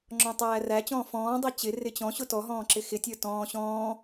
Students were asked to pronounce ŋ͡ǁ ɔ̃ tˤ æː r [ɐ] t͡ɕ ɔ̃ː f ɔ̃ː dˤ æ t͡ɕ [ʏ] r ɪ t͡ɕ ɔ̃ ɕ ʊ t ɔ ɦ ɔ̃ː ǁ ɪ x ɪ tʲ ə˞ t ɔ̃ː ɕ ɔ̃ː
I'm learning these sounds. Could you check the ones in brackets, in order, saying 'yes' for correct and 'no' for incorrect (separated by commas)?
no, no